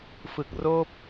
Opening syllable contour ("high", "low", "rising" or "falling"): low